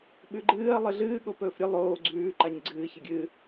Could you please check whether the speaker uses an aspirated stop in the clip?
no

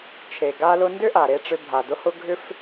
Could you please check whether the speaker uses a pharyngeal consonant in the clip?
no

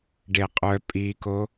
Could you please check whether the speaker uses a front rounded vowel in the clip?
yes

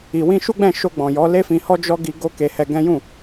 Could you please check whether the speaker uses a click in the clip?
no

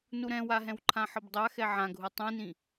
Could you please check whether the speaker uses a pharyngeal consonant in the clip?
yes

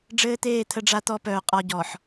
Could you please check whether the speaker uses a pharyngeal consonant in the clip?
yes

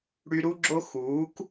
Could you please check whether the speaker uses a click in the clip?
yes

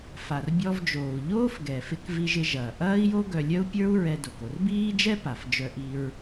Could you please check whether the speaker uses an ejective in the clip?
no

